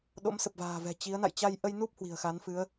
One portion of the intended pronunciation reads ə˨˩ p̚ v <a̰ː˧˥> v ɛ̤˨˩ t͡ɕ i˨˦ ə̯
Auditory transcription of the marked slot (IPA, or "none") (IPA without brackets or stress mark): a̤ː˨˩